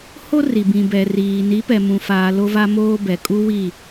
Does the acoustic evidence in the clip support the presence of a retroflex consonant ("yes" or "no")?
no